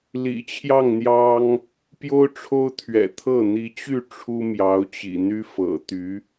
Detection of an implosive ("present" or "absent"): absent